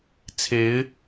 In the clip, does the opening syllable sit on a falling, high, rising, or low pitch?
rising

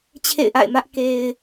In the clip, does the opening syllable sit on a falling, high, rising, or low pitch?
falling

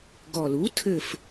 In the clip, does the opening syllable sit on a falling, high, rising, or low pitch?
low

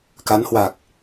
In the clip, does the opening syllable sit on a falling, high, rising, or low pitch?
rising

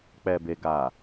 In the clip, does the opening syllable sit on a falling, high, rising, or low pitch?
low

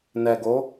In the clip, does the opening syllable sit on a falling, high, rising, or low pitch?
low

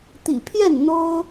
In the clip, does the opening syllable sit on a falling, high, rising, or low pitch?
low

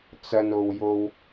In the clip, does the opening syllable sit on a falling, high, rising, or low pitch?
low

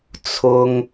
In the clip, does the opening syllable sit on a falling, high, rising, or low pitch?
high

